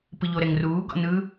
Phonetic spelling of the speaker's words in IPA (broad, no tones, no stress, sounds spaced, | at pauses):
p ɯ ʎ o ɾ ɛ ŋ r uː ɡ ɔ̰ n ɯ